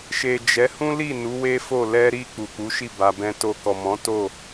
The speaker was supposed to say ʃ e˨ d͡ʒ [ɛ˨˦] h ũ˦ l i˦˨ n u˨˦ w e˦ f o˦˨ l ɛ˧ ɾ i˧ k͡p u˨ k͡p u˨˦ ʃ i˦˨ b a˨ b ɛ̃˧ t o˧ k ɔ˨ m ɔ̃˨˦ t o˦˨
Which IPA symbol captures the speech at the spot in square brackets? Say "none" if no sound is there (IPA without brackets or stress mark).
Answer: ɛ˨˦